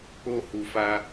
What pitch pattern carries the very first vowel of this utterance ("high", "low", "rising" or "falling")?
high